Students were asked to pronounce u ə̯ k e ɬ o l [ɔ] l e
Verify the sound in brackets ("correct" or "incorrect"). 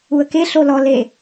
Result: correct